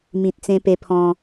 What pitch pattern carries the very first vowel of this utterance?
low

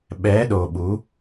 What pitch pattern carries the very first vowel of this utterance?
rising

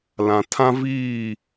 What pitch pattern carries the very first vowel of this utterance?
low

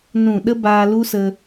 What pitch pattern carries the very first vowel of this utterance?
falling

